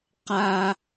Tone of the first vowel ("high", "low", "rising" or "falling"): high